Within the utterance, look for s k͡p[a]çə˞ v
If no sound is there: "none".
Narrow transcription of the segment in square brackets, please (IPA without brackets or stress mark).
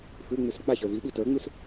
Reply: a